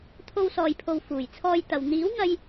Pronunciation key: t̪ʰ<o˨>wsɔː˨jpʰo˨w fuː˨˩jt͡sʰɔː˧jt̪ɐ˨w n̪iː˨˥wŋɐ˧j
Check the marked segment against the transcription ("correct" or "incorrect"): incorrect